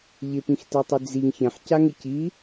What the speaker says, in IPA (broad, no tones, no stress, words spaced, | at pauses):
ʎɪpĩxtɛtˤʉ d͡ziŋ çɛ̃ħcaŋɪ ci